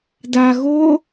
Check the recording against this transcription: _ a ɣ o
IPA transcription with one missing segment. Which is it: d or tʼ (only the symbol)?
d